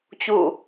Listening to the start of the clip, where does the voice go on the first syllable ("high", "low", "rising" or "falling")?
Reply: falling